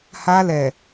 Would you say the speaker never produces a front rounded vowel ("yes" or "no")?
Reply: yes